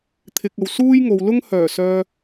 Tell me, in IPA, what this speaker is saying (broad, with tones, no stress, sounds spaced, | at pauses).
t̪ʰ ɪ˨ k̚ ɐ˨ w s uː˥ j ŋ o˨ w l ʊ˥ ŋ h œː˨˩ s œː˨